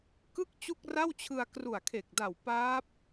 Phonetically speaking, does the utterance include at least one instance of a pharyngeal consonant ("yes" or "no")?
no